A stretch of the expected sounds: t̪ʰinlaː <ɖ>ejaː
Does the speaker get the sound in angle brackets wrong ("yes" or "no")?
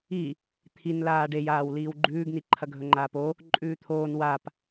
no